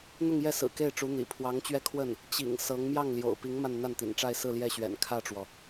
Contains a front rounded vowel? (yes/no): no